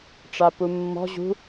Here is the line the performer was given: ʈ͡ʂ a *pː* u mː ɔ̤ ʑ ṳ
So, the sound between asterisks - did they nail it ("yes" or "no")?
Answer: no